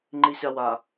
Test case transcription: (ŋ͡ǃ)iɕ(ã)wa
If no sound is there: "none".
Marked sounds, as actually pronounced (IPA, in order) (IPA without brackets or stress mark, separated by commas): ŋ͡ǃ, a